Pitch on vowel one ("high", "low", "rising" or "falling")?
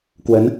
rising